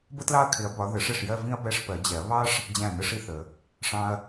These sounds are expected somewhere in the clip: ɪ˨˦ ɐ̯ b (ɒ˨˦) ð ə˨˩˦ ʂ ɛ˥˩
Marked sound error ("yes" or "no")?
no